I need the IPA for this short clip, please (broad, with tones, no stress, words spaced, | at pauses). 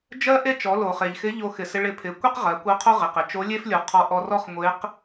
d͡ʒɜ˥ ʔe˥t͡ʃɔ˩˧ lo˩χ e˩ʎxɪ˧˥ ʎo˧xɪ˩sɪ˧ ɭɪ˧pʰɪ˩˧ kʷe˥qʁɜ˩˧ kʷɜ˧˥qʰo˥ʁɪ˩qɪ˩ t͡ʃo˧˥lʲe˥flʲo˩˧qʰɔ˧ ʔɔ˧rɔ˥χŋʷe˧˥q